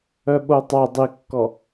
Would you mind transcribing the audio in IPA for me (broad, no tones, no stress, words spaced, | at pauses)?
œɓotˤa dˤikːɔ